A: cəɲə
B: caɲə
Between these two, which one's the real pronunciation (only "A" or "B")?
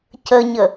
A